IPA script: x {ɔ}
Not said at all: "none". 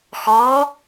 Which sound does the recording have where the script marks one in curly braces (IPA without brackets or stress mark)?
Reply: ɔ